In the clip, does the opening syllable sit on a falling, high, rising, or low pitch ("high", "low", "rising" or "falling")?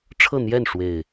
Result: falling